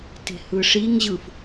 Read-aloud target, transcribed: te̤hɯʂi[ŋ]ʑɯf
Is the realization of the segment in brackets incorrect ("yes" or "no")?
no